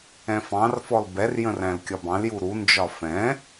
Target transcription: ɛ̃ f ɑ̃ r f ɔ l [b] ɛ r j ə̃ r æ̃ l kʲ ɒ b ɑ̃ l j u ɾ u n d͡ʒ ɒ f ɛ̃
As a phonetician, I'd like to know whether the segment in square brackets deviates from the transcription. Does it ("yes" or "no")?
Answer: no